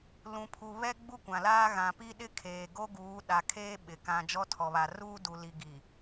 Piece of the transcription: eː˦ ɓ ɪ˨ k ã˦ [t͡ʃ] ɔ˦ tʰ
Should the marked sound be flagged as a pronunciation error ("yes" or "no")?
yes